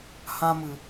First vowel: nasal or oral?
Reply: nasal